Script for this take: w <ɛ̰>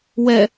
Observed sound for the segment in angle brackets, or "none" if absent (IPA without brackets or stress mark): ɛ